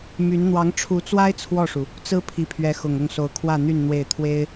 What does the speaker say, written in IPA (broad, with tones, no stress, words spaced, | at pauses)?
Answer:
my˧˥n n̪wɑ˧˥ŋʈ͡ʂʰu˧˥t͡swa˥ɪ̯ t͡sʰwɔ˥˩ʂu˩ | t͡sɹ̩˥ pʰi˧˥pʰɥɛ˧˥ xʊ˨˩ŋ ʊ˥˩ŋso˧˥ʊ̯ kʰwä˥˧n̪y˥˧n n̪we˥˩ɪ̯ t̪ʰwe˥ɪ̯